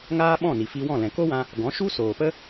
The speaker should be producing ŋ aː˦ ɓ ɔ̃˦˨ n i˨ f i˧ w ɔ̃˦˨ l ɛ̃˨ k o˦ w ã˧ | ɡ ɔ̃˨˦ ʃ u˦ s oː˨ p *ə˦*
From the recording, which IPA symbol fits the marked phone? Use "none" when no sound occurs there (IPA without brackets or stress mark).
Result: ə˦